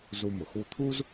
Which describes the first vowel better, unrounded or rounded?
rounded